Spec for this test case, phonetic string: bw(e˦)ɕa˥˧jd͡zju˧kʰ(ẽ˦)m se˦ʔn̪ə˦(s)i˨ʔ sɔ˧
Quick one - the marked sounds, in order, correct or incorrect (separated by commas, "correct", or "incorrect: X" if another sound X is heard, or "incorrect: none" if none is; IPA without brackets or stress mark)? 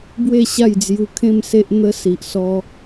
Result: incorrect: e˥˧, incorrect: ẽ˥˧, correct